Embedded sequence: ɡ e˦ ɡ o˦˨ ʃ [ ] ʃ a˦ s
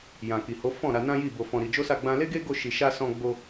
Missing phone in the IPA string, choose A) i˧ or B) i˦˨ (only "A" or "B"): A